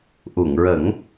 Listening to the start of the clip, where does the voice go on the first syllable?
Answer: low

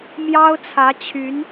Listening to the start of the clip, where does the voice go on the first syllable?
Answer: high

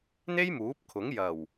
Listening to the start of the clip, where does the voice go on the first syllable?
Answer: high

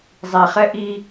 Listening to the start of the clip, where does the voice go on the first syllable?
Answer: low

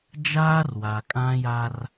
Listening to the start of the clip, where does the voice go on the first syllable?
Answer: high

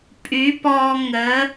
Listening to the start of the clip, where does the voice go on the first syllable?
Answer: rising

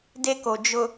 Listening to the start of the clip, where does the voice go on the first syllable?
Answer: high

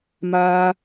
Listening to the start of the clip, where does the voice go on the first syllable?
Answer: high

